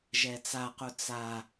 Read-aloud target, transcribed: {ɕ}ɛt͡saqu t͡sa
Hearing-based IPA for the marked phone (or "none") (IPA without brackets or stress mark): ʒ